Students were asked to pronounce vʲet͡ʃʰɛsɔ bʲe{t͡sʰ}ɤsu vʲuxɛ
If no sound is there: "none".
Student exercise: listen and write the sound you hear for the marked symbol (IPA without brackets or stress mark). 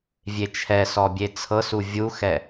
t͡sʰ